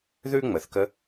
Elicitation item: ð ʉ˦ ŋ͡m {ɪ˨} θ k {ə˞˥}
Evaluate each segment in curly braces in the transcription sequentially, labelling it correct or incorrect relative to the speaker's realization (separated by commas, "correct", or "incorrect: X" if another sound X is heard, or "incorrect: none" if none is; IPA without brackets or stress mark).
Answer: incorrect: ə˨, incorrect: ə˥